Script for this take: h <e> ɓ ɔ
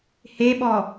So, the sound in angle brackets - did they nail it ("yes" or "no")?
yes